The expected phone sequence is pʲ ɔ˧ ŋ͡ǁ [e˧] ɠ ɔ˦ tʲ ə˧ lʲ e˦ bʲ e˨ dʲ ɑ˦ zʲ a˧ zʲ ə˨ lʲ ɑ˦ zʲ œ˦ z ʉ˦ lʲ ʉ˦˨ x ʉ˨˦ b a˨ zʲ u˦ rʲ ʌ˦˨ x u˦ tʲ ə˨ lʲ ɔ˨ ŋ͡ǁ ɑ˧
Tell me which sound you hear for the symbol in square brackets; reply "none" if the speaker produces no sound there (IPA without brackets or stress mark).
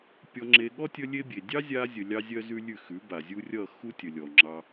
e˧